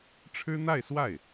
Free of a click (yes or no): yes